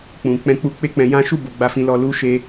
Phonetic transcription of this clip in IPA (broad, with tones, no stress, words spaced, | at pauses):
k͡pũ˨k͡pɛ̃˧k͡pu˧ k͡pe˦k͡pɛ̃˧ jã˦ ʃu˦˨ bo˧ɡ͡ba˧fĩ˧lɔ˧ lu˦ʃe˦